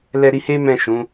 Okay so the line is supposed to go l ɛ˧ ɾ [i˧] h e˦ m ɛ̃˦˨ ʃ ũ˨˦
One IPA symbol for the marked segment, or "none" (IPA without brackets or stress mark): i˧